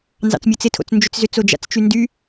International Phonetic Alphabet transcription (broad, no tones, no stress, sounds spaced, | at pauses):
n z ɑ̰ t͡s mʲ o t͡s ɪ tʰ o̰ t͡s n d͡ʒ ʏ t͡s z ʏ t͡s o d͡ʒ a̰ t͡s t͡ʃ y n d y